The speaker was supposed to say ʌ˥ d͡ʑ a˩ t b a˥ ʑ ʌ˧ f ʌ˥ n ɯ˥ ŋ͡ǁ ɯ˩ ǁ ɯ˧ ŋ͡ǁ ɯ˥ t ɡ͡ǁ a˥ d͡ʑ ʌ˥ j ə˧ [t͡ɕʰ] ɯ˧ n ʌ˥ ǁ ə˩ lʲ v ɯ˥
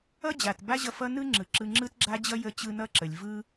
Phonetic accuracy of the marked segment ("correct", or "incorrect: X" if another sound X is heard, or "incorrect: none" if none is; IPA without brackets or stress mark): incorrect: t͡ɕ